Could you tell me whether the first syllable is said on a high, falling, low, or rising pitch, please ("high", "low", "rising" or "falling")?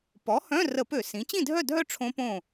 rising